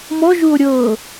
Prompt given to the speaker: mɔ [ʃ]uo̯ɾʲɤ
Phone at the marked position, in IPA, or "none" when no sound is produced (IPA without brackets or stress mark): ʒ